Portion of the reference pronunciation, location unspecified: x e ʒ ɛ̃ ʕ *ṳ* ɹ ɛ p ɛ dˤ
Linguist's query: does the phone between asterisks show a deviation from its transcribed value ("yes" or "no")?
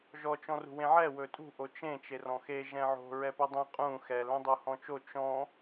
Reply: yes